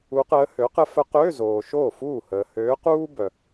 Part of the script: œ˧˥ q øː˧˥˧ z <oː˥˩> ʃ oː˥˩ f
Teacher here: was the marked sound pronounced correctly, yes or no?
no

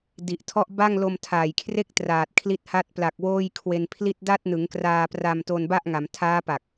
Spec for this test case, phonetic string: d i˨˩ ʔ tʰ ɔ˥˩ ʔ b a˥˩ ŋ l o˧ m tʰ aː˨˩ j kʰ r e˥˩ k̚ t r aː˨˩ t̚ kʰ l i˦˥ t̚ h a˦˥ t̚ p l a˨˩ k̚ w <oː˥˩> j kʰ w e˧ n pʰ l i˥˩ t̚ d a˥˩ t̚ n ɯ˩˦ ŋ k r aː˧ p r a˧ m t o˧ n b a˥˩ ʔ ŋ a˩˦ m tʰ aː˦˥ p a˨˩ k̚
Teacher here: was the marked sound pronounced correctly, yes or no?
yes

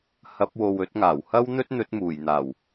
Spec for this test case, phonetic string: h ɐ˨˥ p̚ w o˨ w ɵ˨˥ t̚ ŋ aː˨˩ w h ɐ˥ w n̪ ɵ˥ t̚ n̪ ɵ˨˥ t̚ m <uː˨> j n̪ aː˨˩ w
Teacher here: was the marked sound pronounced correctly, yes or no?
no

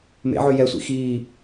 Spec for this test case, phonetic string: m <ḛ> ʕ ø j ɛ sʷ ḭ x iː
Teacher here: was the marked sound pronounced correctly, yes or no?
yes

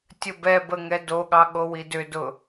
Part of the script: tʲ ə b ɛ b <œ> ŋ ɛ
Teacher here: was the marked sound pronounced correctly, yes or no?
no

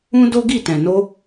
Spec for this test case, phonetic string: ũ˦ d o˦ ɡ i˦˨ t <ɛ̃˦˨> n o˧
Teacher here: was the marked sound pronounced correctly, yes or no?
no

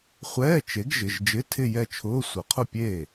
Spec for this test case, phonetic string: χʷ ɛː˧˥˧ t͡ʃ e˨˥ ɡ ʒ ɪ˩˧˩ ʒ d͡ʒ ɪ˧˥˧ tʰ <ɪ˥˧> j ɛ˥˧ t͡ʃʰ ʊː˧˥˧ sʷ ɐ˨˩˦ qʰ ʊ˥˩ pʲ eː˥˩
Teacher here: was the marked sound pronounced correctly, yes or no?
yes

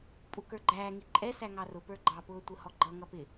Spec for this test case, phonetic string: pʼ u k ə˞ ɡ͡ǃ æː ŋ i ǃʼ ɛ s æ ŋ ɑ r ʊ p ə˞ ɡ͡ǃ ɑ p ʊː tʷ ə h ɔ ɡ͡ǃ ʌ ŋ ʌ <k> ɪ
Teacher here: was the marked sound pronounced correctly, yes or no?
no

